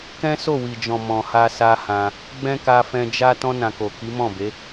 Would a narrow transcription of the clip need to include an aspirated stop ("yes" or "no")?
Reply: no